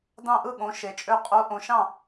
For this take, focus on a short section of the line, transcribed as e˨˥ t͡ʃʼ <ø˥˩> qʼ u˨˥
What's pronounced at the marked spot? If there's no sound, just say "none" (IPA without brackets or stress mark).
ø˥˩